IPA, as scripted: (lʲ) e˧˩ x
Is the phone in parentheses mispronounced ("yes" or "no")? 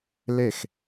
yes